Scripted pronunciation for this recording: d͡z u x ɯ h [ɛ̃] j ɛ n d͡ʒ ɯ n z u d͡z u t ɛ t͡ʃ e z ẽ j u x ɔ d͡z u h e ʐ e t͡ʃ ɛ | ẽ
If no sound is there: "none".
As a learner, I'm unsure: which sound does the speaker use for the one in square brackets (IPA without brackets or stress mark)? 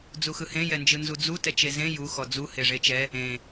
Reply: ẽ